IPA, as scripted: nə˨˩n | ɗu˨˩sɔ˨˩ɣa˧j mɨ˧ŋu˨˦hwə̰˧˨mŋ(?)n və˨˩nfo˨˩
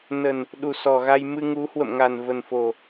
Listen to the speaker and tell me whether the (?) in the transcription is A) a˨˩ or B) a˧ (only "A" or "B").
A